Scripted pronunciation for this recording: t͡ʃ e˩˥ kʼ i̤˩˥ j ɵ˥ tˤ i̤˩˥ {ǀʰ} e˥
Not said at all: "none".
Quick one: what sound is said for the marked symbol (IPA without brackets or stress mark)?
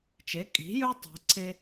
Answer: ǀʰ